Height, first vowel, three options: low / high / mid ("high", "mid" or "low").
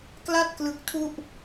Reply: low